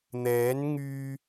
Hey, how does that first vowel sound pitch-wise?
rising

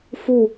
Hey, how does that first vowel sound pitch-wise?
falling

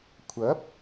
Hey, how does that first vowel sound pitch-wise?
rising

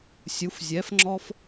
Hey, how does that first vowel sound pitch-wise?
rising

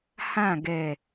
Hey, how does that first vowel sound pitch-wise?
falling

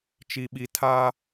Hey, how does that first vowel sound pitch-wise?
low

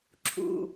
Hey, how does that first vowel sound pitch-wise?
low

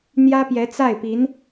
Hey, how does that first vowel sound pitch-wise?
high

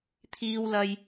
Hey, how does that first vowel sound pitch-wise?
high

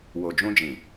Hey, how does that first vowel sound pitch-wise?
low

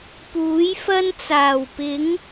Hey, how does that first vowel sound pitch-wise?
rising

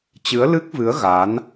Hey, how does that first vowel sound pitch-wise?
rising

